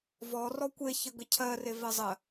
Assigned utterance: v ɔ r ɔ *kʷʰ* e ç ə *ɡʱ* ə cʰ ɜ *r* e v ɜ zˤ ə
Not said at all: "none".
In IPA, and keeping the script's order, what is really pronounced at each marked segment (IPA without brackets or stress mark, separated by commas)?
kʷ, ɡ, r